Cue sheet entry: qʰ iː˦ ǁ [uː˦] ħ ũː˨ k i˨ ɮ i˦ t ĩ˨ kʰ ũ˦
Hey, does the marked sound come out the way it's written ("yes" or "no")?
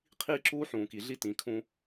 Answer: yes